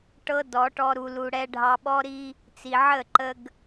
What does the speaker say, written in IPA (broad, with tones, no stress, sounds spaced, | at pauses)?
ʈ ɤ˦ d ɔ˨˦ ʈ ɔ˧ ɾ u˨ l u˨ ɽ ɛ˧ ɖʱ ɑ˧ ɓ ɔ˦ ɾ i˧ | t͡s i˨ ʕ ə˦˨ ǃ ə˧ ɡ